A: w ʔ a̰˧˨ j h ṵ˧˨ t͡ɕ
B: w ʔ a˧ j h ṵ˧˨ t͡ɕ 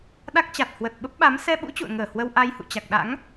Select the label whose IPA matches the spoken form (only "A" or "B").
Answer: B